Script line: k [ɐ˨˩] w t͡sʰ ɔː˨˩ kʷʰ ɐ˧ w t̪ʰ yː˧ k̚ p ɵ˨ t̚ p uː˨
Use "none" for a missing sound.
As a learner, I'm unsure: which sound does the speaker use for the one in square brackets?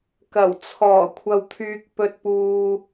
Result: ɐ˨˩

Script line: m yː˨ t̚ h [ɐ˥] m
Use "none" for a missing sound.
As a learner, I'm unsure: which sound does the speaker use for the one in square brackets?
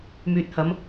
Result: ɐ˨˧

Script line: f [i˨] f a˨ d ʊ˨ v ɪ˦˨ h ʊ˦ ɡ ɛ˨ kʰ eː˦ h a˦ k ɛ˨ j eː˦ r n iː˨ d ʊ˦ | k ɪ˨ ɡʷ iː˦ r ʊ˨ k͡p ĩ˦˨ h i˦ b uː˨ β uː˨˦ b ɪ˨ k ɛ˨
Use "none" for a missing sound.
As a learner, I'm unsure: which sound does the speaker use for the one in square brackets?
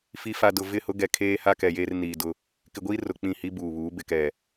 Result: i˨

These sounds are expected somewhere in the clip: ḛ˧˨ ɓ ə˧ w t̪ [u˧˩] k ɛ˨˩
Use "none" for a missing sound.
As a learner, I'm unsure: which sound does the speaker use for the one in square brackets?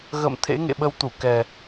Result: u˧˩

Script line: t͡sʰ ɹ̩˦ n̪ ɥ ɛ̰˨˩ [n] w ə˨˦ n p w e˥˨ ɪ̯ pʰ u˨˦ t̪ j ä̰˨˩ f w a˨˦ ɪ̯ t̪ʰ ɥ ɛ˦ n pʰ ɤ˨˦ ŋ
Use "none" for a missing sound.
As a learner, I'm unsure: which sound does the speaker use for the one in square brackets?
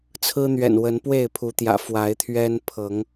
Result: n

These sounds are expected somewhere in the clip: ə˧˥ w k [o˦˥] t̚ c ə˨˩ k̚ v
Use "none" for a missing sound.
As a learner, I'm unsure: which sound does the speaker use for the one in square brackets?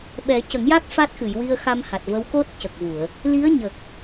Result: o˦˥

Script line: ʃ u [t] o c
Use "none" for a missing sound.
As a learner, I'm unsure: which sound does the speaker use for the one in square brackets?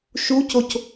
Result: c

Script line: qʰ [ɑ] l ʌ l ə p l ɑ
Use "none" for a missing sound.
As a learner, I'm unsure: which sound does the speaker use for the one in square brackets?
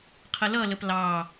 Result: ə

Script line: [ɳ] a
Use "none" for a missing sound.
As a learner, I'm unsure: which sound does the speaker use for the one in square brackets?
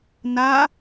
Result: n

